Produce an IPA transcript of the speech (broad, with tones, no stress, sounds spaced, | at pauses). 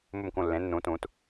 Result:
m u˧˩ m k ũ˧˩ lː ẽ˩˧ nː ũ˩˧ t ũ˩˧ t